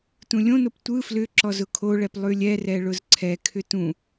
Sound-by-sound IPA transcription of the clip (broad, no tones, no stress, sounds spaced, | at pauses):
t ũ lʲ õ n o p tʷ ɯ f l ʏ ǁ ɔ z ʊ kʰ o ɭ ɛ p lˠ ʉ lʲ ɛ r ɛ ɭ ʊ z ǀʰ ɛ kʰ ʏ t ũ